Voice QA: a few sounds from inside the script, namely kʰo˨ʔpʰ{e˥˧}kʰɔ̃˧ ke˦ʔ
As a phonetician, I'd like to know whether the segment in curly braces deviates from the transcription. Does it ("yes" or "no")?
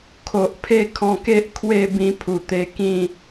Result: no